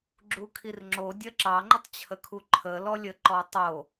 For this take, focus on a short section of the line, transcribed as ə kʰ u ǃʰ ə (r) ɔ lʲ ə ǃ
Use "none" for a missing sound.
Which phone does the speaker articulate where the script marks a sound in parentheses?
l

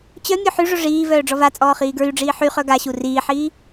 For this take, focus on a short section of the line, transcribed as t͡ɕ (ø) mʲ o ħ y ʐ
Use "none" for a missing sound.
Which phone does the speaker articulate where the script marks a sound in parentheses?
œ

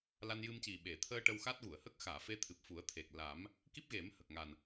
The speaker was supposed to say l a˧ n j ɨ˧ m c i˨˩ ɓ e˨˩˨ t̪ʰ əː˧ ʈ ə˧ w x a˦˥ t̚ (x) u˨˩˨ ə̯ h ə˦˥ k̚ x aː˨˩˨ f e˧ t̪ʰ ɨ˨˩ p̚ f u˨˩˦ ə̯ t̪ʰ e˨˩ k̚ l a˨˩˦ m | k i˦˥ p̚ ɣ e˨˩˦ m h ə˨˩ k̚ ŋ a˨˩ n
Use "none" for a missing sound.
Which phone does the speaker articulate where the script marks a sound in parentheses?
ɣ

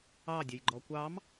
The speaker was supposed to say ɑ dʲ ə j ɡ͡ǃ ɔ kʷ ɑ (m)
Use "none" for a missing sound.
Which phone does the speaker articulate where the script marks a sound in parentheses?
m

